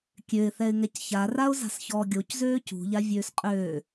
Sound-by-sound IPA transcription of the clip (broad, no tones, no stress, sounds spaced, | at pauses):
kʲ ø ɪ̯ θ ɛ ɪ̯ ŋ ɛ c ç a r a ʊ̯ z a̤ s ç ɔː ɡʲ o c z øː c ṳ ʎ a vʲ øː s qʼ øː